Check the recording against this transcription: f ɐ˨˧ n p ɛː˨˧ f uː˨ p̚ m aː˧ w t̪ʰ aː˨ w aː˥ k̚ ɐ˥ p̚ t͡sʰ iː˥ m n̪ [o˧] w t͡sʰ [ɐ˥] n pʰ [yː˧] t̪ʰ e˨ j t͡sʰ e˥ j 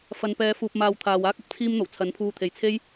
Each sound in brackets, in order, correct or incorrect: incorrect: o˨˩, incorrect: ɐ˨˥, incorrect: uː˧

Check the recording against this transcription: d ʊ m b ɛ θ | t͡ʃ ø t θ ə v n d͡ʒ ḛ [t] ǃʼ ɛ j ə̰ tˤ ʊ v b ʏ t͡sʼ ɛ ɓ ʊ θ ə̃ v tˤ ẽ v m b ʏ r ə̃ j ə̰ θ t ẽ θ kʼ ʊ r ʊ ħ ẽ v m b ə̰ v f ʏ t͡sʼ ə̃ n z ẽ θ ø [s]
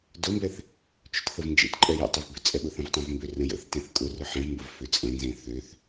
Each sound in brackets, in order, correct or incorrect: correct, incorrect: θ

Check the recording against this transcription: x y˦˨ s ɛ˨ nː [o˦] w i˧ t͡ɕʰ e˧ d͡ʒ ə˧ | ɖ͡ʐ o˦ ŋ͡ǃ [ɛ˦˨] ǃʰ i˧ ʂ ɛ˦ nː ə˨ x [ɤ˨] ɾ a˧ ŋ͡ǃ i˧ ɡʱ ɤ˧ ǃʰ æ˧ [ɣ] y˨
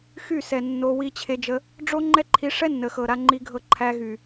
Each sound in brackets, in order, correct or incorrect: incorrect: o˧, incorrect: ɛ˦, correct, correct

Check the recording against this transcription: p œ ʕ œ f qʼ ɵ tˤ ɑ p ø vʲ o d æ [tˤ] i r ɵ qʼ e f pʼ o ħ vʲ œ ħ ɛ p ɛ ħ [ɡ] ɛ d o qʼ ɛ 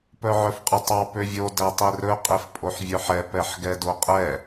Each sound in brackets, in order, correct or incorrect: correct, correct

